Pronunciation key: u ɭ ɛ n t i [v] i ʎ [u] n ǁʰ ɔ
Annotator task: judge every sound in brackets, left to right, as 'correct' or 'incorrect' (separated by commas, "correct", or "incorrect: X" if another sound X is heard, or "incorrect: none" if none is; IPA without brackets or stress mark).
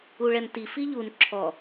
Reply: incorrect: f, correct